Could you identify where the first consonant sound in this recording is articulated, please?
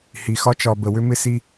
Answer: glottal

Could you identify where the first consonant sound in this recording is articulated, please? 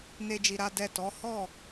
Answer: alveolar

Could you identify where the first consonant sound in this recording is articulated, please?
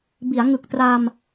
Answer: labial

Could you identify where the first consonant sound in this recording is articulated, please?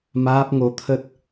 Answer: labial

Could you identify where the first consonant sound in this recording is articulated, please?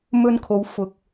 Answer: labial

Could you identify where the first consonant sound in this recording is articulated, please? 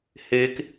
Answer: glottal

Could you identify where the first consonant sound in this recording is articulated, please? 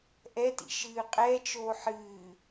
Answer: glottal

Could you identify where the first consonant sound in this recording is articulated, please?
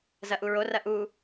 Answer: alveolar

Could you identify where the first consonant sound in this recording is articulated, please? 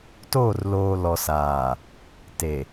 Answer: alveolar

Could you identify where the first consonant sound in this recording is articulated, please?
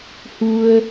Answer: glottal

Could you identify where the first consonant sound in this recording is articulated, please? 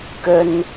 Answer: velar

